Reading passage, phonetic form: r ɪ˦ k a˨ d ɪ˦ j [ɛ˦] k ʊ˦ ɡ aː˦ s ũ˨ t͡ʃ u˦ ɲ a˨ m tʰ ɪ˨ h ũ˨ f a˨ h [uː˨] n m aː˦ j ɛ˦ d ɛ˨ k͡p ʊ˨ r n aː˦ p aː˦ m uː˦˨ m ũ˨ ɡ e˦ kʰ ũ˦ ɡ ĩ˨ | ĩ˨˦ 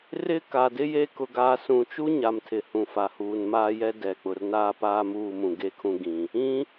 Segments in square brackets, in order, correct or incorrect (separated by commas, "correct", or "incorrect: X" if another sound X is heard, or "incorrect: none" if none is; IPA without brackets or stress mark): incorrect: e˦, correct